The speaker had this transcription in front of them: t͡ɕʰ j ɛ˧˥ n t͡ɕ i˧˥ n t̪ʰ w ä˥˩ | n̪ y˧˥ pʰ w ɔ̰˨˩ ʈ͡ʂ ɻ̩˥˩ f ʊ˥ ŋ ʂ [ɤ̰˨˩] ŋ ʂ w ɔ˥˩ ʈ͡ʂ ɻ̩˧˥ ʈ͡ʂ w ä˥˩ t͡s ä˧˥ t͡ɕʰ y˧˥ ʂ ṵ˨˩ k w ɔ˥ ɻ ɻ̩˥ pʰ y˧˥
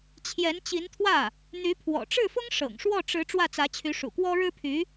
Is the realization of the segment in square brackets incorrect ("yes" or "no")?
no